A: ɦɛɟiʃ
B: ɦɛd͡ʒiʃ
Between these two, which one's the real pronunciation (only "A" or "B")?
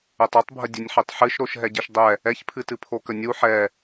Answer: A